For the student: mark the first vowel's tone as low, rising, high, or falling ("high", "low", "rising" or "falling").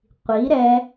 rising